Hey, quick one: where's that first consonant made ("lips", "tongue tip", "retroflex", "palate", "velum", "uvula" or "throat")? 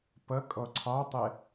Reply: lips